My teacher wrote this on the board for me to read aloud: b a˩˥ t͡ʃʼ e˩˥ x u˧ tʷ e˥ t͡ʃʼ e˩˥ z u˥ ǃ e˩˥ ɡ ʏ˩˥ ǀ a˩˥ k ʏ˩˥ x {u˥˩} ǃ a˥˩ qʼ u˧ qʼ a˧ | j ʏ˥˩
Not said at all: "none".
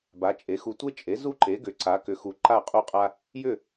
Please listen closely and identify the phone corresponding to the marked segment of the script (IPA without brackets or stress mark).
u˩˥